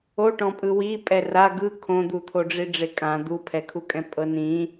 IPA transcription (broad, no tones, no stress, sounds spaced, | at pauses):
o ʈ ɔ̃ pʼ ɯ w i pʼ ɛ r a ɡ ɯ kʰ õ d̪ u t̪ʰ o ɖ͡ʐ i ɖ͡ʐ e kʼ ã d̪ u pʰ ɛ kʰ u kʼ ɛ̃ pʼ ɤ n ĩ